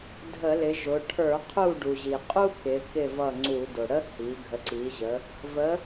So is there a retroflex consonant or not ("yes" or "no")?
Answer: yes